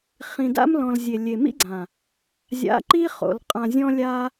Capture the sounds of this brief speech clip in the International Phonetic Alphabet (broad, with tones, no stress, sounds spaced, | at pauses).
χ ĩ˨ d a̰˦ m l ɔ̃˨ l zʲ e˨ lʲ e˨ m ḭ˦ ɡ͡ǀ ã˨ | zʲ a̰˨˦ ǃ i˦ χ o̰˨ l qʼ ã˨ zʲ ɔ̃˧ lʲ a˧